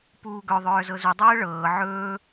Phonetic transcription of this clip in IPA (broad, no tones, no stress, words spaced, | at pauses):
puːɡœ ðˤœːzɤzu dˤɤːɭɤː ʕɵː